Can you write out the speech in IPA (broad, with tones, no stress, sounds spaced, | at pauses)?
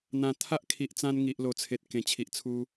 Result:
n̪ ã˨˩ t̪ʰ a˦ ʔ kʰ i˨ ʔ t͡s ã˧ n ŋ i˨ ʔ l o˨˩ t͡sʰ e˨ t̚ k ẽ˨˩ t͡ɕʰ i˨ ʔ t͡sʰ u˧